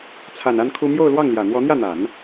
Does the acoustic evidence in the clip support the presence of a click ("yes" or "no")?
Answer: no